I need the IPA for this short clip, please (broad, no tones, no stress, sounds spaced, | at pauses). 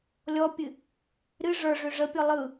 lʲ ɔ pʲ ɨ | ɾ ɨ ʐ ə˞ ʐ ʏ ʐ ə pʲ ɔ lˠ ɯ